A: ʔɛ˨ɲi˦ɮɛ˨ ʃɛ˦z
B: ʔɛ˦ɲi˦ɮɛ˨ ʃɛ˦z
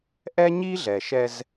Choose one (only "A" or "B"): B